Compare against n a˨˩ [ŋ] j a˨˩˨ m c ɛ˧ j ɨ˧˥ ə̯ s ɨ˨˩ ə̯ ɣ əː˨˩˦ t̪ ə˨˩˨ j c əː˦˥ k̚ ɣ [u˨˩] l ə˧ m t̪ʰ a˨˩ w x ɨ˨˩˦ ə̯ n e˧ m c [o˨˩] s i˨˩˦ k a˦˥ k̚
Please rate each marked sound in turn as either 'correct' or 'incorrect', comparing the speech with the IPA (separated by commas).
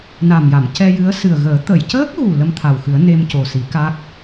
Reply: incorrect, correct, correct